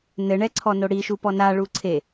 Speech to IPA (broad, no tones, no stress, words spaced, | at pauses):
nɘɳɛǀʰɔno ɽiʃupɔ naɭu ǀʰe